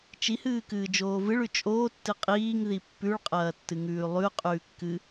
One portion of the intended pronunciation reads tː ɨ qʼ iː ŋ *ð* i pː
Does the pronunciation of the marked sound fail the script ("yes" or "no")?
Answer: no